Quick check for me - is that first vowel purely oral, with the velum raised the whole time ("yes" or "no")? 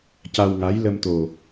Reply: yes